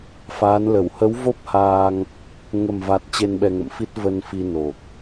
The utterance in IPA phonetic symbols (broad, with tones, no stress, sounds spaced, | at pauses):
f aː˨˦ n l ə˧˩ w h ə˨˦ w v o˦˥ p̚ h aː˧ ŋ | ŋ ə˨˩ m v a˨˩ t̚ t͡ɕ e˧ n ɓ ɛ˧ ŋ ə̰˧˨ m f i˦˥ t̚ v ə˧ n f i˧ n o˨˩ k̚